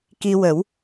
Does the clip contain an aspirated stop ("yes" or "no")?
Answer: no